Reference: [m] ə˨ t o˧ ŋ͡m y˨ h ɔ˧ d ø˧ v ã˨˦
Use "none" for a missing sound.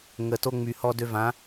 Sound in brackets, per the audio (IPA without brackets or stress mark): ŋ